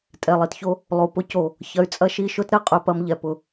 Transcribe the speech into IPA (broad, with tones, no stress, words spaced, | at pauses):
tʼɛ˨lˠi˨tço˦ | lˠo˨pʊ˦ co˨ | çɐ˧y̯t͡sʼɐ˦ ʃi˧ʃʊ˦t ɾɛ˧qʼø˧pɐ˧m ʎɛ˨pʊ˨